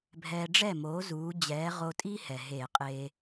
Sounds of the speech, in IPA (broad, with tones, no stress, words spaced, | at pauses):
bʱɛː˧ɖ͡ʐɛ˥˨moː˨˥ zuː˨˥ d͡ʑɛː˨˥ʁo˧ tʼiː˥hɛ˩ ɦeː˧˩˧qʼeː˧